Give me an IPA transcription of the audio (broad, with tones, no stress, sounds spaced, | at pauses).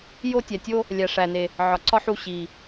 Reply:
j o˦ tʲ æ˨ tʲ o˦ | lʲ æ˨ ʂ æ˨ n e˨ | ʕ ɒ˨ ǀ ɒ˦ ħ u˧ ɕ i˨